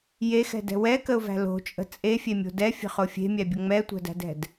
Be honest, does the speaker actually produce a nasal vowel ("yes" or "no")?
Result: no